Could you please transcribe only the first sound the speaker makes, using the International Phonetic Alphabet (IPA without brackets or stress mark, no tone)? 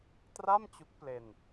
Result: t